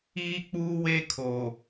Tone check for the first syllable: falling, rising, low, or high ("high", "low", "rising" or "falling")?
high